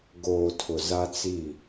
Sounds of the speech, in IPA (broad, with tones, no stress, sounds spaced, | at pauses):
ɡ oː˨ tʰ ʊ˨ z a˦ t͡s i˦˨